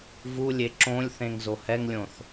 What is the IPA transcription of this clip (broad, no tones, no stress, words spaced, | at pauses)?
vulʲe ǁõlʲθẽŋzo hɛŋlʲõθ